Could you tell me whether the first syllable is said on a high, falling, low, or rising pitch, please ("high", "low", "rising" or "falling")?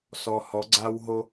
low